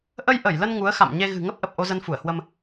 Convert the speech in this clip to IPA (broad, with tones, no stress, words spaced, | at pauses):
ʔə˧jʔə˧˩jlə˧n ŋu˨˦ə̯xa̰˧˨m ɲe˧ ɣɨ̤˨˩ ŋə˦˥p̚ʔə˨˩p̚ ʔo˧zə˧nfu˧˩ə̯hwə˧m